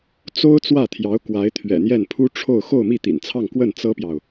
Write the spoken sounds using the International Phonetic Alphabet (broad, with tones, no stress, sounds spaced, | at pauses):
t͡s o˥ ʊ̯ t͡s w ä˥˩ t̪ʰ j ɑ˧˥ ʊ̯ k w a˧˥ ɪ̯ t̪ʰ ɥ ɛ̰˨˩ n̪ j ɛ˥˩ n pʰ u˥ ʈ͡ʂʰ o˥˧ ʊ̯ x o˥˧ ʊ̯ m i˥˩ t̪ ḭ˨˩ n t͡sʰ ɑ˥˧ ŋ k w ə˥˩ n t͡s ɤ˥ p j ɑ˨ ʊ̯